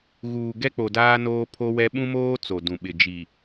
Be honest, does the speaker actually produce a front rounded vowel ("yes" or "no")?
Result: no